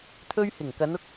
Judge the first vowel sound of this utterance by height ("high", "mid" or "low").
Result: mid